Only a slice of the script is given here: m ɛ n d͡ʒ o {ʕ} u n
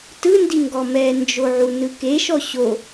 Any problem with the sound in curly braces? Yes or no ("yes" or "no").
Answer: no